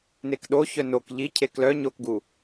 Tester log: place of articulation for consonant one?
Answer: alveolar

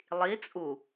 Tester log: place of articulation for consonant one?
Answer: alveolar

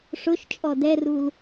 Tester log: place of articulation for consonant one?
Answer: retroflex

